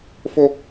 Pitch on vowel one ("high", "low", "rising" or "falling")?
high